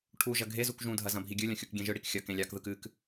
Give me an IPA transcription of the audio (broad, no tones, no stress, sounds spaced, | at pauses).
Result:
ʈʰ u ʒ ɐ ɡʱ e z u k ʒ ũ dʱ ɐ z ɐ̃ bʱ i ɡʲ ɨ lʲ ɐ̃ xʲ u k ɡʲ ẽ ʒ ɯ ɽ i k xʲ ɐ k ẽ lʲ ɑ k ð ɯ k ɨ k